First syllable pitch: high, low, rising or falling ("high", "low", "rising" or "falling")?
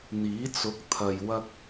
rising